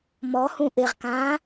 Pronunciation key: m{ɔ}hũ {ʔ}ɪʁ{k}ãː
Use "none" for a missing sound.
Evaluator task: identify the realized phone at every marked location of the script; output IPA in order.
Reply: ɔ, ʔ, k

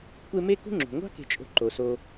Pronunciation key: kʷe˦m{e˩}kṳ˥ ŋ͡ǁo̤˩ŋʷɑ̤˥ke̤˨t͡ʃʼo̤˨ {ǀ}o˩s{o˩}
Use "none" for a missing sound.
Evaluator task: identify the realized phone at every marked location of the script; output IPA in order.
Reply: e˥, ǃ, o˨

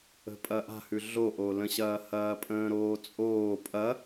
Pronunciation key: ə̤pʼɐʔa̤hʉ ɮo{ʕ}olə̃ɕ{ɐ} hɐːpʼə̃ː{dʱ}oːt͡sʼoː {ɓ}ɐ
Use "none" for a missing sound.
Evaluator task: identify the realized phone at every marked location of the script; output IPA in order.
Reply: ʔ, ɐː, ɾ, pʼ

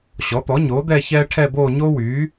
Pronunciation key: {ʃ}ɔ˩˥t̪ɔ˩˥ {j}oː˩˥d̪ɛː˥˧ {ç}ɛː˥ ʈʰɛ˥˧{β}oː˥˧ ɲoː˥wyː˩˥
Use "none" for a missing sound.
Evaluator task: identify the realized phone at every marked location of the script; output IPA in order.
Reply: ɕ, ɲ, ç, b

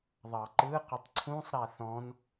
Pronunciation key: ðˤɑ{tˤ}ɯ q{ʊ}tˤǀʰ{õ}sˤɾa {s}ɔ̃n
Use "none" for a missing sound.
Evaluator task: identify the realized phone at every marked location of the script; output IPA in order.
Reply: ǃ, ʊ, ũ, θ

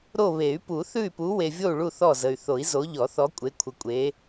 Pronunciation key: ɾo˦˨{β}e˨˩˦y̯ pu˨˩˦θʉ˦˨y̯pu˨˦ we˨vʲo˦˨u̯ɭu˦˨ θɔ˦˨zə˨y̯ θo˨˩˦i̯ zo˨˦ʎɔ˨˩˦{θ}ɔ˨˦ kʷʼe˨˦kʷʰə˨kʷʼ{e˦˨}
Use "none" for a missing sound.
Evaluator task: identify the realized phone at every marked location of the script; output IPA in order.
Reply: β, θ, e˨˦

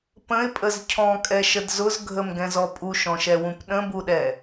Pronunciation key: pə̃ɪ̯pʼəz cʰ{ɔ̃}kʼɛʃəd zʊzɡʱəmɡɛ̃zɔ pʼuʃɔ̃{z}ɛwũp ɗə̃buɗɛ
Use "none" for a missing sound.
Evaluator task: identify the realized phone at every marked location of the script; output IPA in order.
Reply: ɔ̃, ʃ

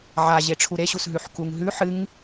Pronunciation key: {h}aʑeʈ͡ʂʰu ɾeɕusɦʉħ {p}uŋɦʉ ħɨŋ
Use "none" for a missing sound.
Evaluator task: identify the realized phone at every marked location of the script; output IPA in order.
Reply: ʕ, k

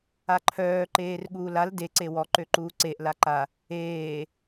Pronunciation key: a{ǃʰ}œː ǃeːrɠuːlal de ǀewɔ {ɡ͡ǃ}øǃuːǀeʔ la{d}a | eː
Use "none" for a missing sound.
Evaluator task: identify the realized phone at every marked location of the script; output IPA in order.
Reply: ǃʰ, ǃ, ǃ

